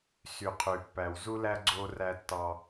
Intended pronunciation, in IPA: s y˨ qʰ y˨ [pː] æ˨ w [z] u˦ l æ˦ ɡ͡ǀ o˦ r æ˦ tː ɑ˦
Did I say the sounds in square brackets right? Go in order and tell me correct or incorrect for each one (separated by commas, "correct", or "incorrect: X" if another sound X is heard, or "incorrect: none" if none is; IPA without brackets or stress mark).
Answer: correct, correct